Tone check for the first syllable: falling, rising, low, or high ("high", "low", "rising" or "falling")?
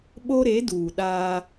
high